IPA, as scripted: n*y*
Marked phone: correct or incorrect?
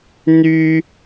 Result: correct